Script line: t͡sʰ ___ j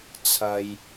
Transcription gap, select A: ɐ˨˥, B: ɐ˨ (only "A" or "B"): B